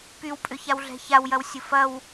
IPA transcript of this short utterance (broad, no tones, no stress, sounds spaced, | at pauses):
p y w pʼ ʏ ç a w ɮ ɛ̤ ç a w j ɐ w sʲ ʊ f ɐ w